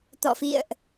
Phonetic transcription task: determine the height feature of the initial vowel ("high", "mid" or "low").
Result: mid